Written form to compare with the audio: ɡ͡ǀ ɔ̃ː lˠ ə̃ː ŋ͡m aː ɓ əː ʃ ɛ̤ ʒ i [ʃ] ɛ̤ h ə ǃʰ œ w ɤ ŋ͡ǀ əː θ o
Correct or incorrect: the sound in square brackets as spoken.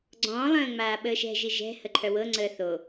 incorrect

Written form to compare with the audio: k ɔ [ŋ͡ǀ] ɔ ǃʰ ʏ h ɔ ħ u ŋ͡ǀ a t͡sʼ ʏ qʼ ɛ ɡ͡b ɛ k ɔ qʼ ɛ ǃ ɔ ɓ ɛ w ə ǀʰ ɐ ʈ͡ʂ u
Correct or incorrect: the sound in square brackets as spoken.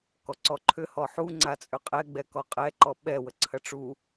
incorrect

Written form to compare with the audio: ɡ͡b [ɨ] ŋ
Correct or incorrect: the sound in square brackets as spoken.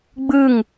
correct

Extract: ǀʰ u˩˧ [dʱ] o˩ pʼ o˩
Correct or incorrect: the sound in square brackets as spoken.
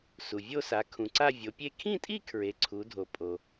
correct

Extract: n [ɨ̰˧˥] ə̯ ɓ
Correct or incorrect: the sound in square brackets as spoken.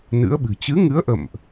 correct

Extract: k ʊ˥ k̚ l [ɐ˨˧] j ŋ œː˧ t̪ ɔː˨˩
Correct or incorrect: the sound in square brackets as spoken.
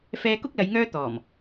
correct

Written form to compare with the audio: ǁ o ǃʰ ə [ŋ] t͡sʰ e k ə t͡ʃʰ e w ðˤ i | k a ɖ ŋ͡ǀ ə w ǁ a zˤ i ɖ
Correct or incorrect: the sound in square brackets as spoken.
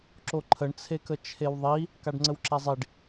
incorrect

